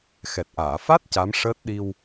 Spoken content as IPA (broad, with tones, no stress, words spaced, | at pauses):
xɛ˨˩t̚ʔaː˨˩˨fa˦˥t̚ ca˧˥mʂəː˦˥t̚ɗi˧w